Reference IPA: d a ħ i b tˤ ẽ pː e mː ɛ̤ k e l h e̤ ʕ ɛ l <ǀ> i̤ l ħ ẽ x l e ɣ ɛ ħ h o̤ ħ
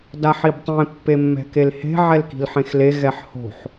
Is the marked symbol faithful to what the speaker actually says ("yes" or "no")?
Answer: no